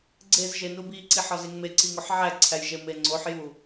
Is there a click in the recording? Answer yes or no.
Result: yes